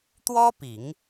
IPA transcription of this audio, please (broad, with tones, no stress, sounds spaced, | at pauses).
t̪ w ɔ˥ p i˨˩˦ ŋ